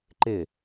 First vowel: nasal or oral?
oral